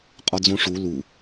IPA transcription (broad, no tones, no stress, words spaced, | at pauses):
qʼɒd͡zõʂu lu